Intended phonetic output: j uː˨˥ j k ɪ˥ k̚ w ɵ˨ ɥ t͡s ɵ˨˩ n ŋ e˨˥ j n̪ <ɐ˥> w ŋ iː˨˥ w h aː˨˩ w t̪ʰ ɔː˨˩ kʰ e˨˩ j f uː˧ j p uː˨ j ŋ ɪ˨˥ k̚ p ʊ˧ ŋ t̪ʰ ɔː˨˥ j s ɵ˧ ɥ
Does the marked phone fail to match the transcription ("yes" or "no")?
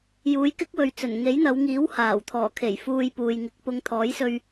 yes